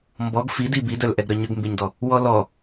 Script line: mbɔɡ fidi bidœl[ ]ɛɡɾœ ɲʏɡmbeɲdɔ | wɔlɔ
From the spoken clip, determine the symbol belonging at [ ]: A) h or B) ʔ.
B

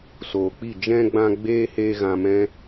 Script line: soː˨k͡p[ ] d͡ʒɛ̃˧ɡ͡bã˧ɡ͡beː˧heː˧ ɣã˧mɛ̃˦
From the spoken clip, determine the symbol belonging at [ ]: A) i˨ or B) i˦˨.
B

